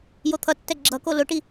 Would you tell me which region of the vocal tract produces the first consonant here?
palate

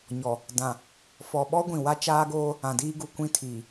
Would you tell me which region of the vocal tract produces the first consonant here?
palate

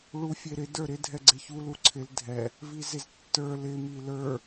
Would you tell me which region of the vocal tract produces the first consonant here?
retroflex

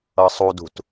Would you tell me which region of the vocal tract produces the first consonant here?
tongue tip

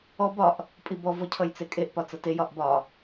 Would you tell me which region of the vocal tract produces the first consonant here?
lips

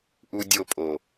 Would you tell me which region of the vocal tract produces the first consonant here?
throat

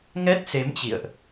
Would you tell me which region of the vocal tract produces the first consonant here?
velum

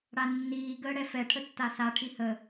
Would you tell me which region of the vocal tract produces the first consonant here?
retroflex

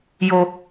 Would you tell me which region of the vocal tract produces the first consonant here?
palate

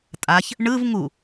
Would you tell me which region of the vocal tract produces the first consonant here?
tongue tip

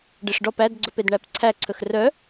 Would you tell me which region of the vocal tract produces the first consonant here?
retroflex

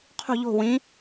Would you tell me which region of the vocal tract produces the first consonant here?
uvula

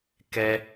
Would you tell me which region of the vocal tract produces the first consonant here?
velum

